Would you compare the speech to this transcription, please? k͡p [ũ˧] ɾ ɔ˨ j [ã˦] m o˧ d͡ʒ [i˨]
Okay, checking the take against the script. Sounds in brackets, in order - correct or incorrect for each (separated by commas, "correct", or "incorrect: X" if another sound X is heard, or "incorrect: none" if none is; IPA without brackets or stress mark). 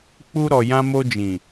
incorrect: u˧, incorrect: ã˧, incorrect: ĩ˨